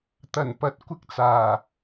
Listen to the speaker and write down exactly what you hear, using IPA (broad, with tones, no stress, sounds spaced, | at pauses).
t̪ ɐ˨˩ n p ɐ˨˥ t̚ kʷ ɪ˧ k̚ t͡s aː˨˩